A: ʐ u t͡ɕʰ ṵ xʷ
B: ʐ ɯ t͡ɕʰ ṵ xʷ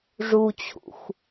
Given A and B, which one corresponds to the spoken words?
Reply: A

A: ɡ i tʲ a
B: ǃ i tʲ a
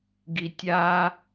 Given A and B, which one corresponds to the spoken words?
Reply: A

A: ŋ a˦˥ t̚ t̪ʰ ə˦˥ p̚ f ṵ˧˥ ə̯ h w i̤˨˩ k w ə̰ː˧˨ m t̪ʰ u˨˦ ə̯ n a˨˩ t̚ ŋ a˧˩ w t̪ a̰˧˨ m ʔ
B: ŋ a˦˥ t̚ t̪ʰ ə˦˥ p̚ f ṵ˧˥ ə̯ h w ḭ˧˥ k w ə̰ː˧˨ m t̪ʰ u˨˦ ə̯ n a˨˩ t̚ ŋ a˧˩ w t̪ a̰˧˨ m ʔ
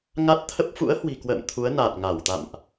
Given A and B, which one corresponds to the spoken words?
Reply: A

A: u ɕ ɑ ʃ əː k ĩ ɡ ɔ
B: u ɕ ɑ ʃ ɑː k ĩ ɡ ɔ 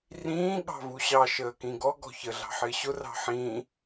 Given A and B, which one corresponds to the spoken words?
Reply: A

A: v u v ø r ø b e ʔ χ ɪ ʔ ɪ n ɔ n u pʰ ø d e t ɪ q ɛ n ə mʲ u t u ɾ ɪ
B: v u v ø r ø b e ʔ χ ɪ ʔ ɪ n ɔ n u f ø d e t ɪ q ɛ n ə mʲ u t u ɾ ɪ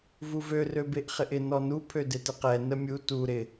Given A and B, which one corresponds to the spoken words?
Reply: A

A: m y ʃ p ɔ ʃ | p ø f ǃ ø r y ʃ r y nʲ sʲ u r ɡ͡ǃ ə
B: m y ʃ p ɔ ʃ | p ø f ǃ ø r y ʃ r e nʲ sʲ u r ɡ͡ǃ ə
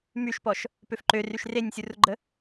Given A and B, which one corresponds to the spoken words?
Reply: B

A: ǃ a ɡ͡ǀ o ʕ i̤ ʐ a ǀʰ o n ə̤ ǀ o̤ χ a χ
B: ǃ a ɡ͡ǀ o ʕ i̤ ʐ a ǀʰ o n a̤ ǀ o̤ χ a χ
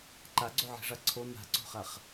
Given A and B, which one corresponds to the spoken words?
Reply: B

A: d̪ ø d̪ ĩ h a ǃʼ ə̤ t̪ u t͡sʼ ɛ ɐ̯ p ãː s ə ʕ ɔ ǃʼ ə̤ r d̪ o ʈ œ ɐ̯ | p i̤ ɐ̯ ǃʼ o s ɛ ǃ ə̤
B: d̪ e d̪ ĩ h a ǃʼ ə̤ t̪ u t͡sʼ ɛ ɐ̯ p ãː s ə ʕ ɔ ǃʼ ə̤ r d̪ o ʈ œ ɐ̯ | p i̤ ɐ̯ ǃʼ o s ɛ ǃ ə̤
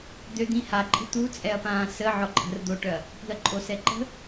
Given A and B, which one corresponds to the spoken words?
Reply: A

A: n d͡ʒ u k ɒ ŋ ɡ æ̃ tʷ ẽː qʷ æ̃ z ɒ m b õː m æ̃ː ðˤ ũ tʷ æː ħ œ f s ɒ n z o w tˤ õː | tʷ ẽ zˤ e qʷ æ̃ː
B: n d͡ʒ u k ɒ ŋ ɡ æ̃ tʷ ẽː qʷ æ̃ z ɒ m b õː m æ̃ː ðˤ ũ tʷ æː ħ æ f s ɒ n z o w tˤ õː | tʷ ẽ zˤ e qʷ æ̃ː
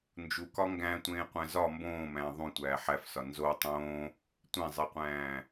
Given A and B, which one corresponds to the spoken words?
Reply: B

